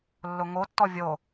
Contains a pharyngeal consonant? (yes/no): no